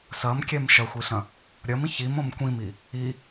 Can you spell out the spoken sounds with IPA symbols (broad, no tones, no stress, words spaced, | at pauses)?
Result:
sɐmkʲɛm ʃɐxʷiɬɐ̃ | ɾʲɐmĩ çimõm kʷĩmi | i